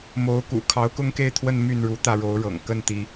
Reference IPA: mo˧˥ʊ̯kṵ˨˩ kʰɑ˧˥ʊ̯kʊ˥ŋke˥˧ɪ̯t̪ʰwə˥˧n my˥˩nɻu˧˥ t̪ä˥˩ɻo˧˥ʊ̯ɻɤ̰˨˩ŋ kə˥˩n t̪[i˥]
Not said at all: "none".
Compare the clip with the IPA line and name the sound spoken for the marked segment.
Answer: i˥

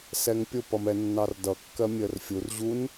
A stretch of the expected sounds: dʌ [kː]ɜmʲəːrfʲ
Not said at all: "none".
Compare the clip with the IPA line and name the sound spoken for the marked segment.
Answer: kː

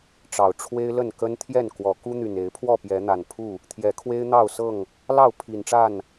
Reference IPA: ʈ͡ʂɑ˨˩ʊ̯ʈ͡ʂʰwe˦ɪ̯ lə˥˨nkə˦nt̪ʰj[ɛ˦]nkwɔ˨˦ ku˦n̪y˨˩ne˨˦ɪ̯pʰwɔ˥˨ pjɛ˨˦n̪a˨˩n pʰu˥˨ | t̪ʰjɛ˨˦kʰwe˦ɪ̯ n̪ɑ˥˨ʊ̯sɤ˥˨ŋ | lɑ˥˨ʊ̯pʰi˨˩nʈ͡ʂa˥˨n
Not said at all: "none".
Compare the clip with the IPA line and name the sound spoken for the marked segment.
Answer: ɛ˥˨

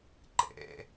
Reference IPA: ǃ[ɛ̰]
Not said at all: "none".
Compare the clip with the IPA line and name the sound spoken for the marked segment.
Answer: ɛ̰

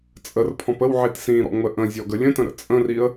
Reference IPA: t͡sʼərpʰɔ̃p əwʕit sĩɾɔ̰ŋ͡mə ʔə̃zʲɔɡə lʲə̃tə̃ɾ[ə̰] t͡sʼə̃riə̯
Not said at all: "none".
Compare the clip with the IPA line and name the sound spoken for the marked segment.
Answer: ə̰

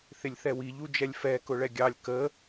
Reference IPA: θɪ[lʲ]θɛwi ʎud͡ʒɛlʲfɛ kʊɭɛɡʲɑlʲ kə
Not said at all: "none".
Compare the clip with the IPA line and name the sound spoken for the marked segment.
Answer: lʲ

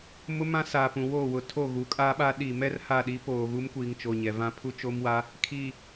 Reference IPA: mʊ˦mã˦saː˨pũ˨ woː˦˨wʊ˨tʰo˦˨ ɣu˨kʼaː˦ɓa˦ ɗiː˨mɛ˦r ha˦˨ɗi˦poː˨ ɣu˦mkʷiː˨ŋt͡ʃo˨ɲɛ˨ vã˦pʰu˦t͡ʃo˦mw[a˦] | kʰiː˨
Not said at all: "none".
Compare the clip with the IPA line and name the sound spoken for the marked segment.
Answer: a˦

